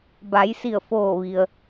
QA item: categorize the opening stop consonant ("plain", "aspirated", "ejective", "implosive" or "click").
plain